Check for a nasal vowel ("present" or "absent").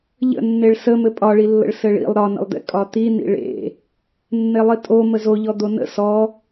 absent